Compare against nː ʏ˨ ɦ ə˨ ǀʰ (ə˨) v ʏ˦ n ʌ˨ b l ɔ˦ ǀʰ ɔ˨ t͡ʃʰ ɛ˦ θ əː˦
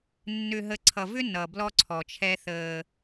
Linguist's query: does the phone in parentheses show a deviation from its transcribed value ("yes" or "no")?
yes